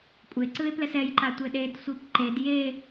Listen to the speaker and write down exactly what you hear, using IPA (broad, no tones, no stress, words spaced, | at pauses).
kʷʼeǀɯe̯plɛs ɛjǃa tʷeɗed sʷipǃed je